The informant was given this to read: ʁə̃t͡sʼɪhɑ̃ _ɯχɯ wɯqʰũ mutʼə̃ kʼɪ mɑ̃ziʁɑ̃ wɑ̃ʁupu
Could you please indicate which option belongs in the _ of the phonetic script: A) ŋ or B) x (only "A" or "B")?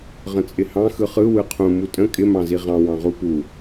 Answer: B